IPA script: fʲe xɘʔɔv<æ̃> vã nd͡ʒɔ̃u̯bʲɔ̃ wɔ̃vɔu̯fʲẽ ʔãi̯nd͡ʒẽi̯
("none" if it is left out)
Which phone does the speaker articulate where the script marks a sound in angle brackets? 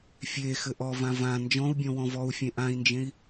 ã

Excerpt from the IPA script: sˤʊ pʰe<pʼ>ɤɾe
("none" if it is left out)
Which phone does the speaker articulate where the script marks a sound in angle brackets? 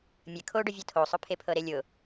pʰ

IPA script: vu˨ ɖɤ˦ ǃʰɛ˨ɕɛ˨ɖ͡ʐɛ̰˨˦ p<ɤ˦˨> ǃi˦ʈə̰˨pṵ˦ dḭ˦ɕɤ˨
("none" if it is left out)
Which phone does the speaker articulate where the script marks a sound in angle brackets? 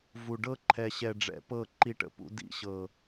ɤ˦˨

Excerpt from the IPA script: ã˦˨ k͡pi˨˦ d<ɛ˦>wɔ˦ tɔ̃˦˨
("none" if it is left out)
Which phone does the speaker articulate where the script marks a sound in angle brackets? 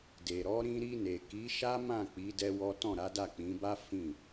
ɛ˦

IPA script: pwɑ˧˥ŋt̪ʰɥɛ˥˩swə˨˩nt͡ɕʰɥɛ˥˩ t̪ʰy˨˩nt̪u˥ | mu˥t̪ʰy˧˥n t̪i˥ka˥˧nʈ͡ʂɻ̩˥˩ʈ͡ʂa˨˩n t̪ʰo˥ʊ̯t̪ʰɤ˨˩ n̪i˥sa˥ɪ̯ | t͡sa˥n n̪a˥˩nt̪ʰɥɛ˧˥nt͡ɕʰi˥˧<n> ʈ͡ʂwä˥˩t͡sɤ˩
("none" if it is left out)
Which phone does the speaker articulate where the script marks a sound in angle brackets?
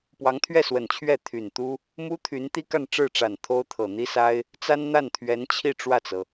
none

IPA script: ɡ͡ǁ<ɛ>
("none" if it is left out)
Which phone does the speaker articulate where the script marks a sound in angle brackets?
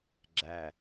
æ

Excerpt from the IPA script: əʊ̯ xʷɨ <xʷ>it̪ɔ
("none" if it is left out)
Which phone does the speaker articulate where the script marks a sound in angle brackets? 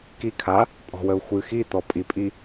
x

